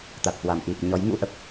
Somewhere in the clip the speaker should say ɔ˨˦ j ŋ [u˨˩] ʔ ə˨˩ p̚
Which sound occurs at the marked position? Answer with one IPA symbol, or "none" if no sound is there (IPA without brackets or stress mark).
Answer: ṵ˧˥